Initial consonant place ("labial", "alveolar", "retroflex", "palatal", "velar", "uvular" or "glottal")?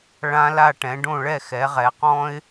retroflex